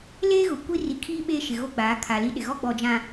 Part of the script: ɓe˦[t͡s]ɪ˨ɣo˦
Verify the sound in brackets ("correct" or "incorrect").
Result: incorrect